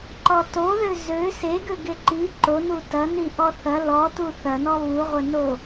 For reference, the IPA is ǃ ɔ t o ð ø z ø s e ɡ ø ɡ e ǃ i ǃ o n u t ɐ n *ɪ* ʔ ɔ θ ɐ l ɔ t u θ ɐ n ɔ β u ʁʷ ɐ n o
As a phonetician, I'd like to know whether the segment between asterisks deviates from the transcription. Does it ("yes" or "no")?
yes